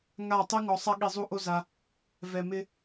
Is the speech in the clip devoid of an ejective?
yes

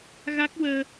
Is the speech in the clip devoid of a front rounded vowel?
yes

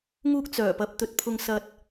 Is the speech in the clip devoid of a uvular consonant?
yes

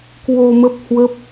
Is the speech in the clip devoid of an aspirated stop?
yes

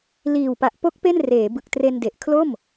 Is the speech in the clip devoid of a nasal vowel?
yes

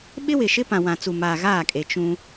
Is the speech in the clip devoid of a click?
yes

